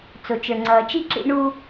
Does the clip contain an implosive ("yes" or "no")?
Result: no